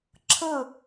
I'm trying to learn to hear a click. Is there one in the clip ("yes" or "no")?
yes